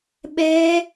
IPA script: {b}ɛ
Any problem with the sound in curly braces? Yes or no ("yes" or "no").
yes